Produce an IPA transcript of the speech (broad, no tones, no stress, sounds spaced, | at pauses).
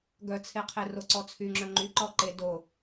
ɡ œ t͡sʰ e qʰ e r o ǀ ɔ t͡sʰ y ŋ͡ǁ œ ŋ͡ǃ y ǃ ɔ ǃ e d o